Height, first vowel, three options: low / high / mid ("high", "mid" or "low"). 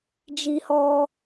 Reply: high